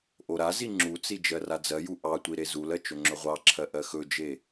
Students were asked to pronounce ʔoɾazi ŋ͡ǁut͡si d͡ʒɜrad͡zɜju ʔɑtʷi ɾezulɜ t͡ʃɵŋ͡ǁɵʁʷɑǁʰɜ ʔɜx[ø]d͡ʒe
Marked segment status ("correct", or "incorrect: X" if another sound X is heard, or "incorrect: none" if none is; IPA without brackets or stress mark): incorrect: ɵ